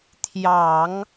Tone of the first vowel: low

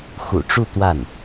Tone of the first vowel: low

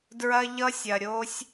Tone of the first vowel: high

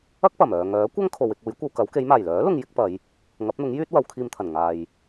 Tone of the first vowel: high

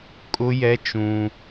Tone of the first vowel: high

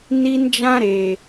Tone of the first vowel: high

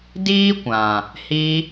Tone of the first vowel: high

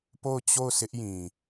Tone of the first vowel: falling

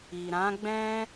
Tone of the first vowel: low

